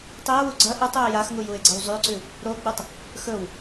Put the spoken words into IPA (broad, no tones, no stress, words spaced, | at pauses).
tˤio̯wu ɡ͡ǀɐ ʔutˤʉe̯ jaxŋu jue̯ɡ͡ǀewzˤʉǀʉ | ɾoɡ͡bɨtˤ | xɵw